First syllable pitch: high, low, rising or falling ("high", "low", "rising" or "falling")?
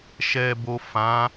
low